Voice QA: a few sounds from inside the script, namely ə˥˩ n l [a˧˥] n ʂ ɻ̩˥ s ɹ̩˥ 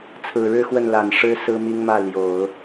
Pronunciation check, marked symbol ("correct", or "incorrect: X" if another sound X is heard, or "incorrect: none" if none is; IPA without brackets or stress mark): incorrect: a˨˩